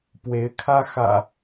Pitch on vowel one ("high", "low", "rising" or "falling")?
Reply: rising